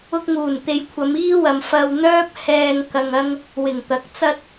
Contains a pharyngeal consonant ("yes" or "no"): no